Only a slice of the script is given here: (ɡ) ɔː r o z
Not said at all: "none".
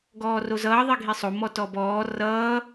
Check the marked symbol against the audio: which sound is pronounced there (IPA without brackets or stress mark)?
ɡ